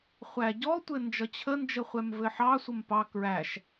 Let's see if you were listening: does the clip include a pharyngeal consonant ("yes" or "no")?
yes